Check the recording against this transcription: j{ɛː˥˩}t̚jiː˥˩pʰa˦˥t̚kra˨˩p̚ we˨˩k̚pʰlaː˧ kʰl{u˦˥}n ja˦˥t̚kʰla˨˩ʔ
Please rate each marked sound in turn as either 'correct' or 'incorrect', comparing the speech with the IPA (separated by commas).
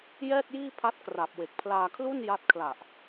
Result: correct, incorrect